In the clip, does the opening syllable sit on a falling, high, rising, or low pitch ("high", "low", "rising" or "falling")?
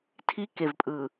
high